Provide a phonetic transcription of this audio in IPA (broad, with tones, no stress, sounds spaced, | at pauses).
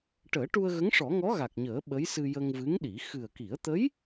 ʈ əː˨˩˦ ʈ u˧ ə̯ ɣ ə˧˥ ŋ ʂ ɔ˨˩˦ ŋ ɔ˧˥ ɣ a˨˩ k̚ ɲ əː˨˩˦ ɓ ə˧˥ j s ɨ˧ j ə˧ ŋ v ɨ˧˥ ŋ ɗ i˨˩˦ x ɨ˨˩ ə̯ k i˨˩˦ ə̯ t̪ ə˧˥ j